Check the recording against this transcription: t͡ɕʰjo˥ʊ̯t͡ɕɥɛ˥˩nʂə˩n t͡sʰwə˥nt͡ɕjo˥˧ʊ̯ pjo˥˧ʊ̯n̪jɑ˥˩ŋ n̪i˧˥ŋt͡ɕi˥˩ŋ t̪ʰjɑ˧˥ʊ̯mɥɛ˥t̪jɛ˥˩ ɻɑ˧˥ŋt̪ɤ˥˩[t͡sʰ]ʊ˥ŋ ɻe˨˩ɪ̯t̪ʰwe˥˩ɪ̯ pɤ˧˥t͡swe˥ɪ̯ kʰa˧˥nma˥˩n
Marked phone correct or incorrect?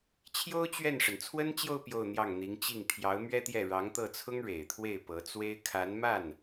correct